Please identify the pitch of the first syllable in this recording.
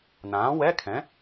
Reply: rising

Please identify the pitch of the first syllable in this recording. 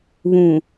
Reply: low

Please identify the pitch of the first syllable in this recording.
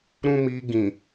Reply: high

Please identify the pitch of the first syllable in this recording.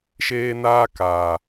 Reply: high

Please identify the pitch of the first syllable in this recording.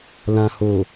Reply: low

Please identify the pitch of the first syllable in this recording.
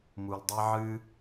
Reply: low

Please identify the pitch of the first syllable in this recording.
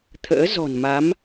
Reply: rising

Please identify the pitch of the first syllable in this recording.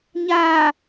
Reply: low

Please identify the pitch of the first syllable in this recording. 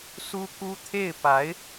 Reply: high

